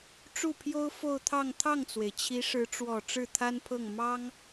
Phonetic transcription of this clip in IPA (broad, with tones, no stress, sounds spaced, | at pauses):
ʈ͡ʂ u˥˩ pʰ j o˥ ʊ̯ f o˥˧ ʊ̯ t̪ʰ ɑ˥˧ ŋ t̪ʰ ɑ˥˩ ŋ t͡s w e˩ ɪ̯ t͡ɕʰ i˧˥ ʂ ɻ̩˧˥ ʈ͡ʂ w ɔ˨˩ ʈ͡ʂ ɻ̩˥˩ t̪ʰ a˥ n pʰ ɤ˥˩ ŋ m ɑ˥ ŋ